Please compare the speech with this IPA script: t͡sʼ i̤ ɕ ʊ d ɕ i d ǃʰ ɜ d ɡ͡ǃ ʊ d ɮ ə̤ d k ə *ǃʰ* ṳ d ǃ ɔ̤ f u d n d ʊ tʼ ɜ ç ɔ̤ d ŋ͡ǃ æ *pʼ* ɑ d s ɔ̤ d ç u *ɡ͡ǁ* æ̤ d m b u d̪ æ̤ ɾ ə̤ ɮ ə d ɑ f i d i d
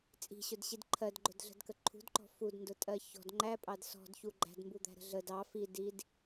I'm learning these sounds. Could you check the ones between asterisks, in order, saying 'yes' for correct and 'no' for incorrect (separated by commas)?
yes, yes, no